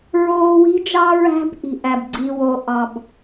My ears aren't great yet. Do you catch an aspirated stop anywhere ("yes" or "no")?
no